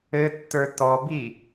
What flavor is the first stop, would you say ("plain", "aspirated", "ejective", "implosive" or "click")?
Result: plain